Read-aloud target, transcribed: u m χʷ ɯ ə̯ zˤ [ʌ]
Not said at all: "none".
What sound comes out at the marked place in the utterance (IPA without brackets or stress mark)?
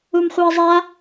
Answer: a